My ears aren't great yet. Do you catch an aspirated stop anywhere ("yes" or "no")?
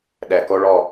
no